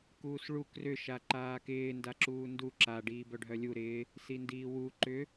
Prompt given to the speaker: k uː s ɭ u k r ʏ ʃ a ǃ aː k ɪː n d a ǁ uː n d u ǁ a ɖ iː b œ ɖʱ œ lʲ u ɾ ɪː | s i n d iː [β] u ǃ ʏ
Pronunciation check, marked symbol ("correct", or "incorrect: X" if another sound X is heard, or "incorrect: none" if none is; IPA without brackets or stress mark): incorrect: w